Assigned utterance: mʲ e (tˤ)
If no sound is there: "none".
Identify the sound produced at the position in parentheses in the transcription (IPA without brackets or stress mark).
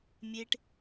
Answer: ʈ